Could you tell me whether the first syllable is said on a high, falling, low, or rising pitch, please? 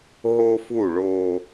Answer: high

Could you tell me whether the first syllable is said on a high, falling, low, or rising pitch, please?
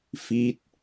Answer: falling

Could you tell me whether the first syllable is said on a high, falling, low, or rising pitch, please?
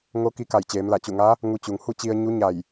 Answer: rising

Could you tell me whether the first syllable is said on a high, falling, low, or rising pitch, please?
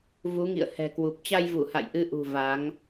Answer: rising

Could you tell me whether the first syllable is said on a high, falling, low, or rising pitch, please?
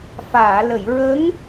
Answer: low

